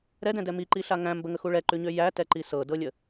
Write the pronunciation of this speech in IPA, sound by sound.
ɾ ɛ d ɛ̃ d ɛ m i ǃ i ɬ a ŋ æ̃ m b ə ŋ ə x u ɭ ɛ ǃ ʉ ɲ ø j æ t ɛ ǃ i s ɤ d ɤ lʲ ə

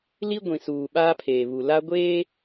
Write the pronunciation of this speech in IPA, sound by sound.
l i˦ ɡʷ ĩ˨ s uː˨ ɓ aː˦ pʰ eː˨ β u˨ l a˦ ɡʷ eː˦

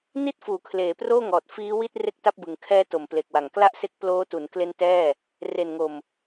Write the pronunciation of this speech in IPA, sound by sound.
n i˥˩ t̚ f uː˩˦ kʰ l eː˩˦ p r oː˥˩ ŋ ɔː˨˩ t̚ f iː˦˥ w i˥˩ t̚ r e˥˩ k̚ t a˥˩ p̚ b ɯ˨˩ ŋ kʰ ɛː˦˥ t o˩˦ m p l e˨˩ k̚ w a˨˩ ŋ k l a˥˩ ʔ s e˦˥ k̚ p l oː˦˥ t u˩˦ n k l e˦˥ n t ɛː˥˩ | r e˨˩ n ŋ o˨˩ m

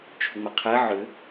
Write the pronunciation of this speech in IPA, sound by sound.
t͡ʃʰ ʏ ŋ͡m ɛ qʰ ɛ ʕ ʏ

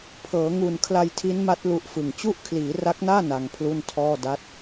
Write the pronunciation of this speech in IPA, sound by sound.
pʰ ɤː˩˦ ŋ u˨˩ n kʰ l a˧ j tʰ i˦˥ n m a˦˥ t̚ l u˦˥ ʔ f ɯ˨˩ ŋ t͡ɕ u˥˩ ʔ kʰ l iː˩˦ r a˦˥ k̚ n aː˥˩ n a˧ ŋ pʰ l u˥˩ n tʰ ɔː˥˩ d a˦˥ t̚

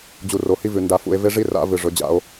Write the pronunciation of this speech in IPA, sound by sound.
d͡ʑ u˨ r o˨ h i˦ v ʉ˨ n d a˨ f ṵ˨ e̯ v e˦ ʐ i˦ r a̰˨˦ v ɨ˨ ʐ ɵ˨˦ d͡ʑ a̰˦ o̯

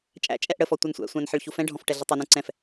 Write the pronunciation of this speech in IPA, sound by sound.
t͡ʃʼ æ̰ t͡ʃʼ ɛ ʔ ɽ ə f ɔ tʷ ʌ n sʷ æ̰ sʷ æ̃ n ħ ə ɭ ç u f ɛ̃ ɖʱ ɔ̃ f ʈ ɛ ɮ i tˤ ɔ n ũ ǀ ɛ̃ f

